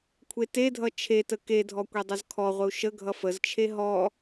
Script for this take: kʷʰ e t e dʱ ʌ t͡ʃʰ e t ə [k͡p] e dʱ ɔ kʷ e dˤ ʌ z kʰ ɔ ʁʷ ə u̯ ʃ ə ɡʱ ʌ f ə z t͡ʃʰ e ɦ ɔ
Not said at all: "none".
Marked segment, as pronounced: k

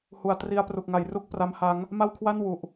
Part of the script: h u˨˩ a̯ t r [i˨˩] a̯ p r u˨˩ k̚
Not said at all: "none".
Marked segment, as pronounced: i˧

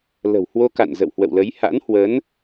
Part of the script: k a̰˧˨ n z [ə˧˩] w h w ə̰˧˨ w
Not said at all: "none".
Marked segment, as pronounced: ə̰˧˨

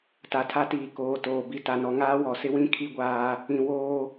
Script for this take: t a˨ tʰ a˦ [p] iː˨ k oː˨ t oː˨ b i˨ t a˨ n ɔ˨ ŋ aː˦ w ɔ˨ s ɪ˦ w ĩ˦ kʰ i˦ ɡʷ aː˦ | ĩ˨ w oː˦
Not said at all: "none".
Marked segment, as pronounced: t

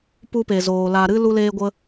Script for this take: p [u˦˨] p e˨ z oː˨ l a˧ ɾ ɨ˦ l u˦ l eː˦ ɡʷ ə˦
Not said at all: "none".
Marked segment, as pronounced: u˦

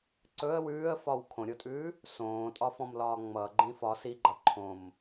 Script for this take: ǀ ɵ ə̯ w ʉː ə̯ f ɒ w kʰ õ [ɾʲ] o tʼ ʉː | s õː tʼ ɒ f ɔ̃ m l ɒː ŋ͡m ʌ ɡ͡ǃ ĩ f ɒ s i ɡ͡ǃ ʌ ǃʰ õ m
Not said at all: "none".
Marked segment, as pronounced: ɾʲ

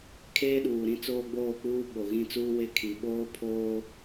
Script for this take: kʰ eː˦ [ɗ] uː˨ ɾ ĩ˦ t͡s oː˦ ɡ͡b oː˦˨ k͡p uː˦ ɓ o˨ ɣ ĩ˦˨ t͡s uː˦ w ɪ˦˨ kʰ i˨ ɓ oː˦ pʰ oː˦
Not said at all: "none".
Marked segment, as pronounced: ɗ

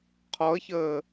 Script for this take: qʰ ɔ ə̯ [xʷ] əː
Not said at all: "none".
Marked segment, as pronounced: ç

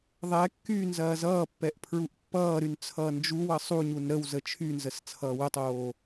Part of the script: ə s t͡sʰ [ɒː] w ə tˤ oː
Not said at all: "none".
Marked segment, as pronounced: ʌː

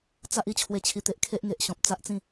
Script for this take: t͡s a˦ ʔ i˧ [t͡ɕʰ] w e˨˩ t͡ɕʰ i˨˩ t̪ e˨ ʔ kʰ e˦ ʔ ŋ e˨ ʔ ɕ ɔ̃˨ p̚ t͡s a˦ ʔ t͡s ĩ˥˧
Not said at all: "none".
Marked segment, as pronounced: t͡ɕʰ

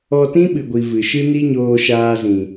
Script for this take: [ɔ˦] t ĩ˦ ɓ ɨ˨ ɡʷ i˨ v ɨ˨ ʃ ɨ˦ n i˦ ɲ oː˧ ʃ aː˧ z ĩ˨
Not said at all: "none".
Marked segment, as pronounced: ɔ˧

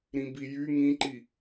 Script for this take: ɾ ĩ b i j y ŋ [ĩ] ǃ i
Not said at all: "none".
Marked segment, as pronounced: ĩ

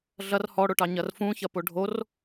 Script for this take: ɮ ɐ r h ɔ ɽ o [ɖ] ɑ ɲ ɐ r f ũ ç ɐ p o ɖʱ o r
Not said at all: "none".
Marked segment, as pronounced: ʈ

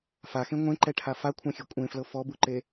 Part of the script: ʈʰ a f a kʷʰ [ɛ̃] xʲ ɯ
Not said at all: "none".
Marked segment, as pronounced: ɛ̃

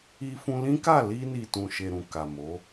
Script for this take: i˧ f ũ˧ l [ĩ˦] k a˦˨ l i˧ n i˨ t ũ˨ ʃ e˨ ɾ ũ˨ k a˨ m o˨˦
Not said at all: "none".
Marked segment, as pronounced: ĩ˦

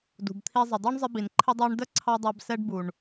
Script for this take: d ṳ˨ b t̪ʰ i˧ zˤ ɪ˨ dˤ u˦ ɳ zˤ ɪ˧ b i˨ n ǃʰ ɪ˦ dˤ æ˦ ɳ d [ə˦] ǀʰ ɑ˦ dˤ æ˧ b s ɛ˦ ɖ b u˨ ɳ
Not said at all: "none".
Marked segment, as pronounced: ə˦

